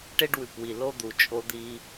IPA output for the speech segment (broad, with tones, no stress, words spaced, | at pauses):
ʈe˦ɖwʉ˨pwi˨ lo˦d̪u˨ t͡ʃʼo˦d̪i˦